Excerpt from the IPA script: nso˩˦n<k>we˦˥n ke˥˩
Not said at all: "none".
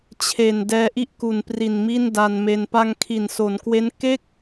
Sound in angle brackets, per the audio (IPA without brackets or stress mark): k